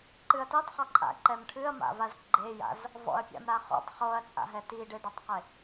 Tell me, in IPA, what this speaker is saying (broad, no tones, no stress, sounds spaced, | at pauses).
ǃ ɨ ɐ̯ t e tˤ χ ɔ ǃʼ a̰ ǃ ɛ m ʈʰ ɨ ɐ̯ m a̰ v a z ɡ͡ǃ e j a̰ z | v ɔ̰ ɐ̯ pʲ a̰ m ɾ a χ ɔ̰ tˤ χ o ɐ̯ t͡sʼ a̰ ɦ ɛ t i ɖ e ɖ ɐ tˤ q e